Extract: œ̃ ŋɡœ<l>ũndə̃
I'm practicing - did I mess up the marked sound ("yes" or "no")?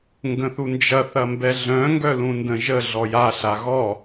no